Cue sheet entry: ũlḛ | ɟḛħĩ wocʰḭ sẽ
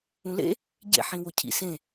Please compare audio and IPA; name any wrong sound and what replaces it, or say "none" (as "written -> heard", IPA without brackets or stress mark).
none